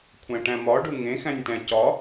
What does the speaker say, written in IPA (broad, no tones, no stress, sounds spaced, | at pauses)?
kʷʰ æ̃ ʈ æ̃ m ɒ ɖ u ŋ ẽ x æ̃ nʲ t æ̃ c ɒ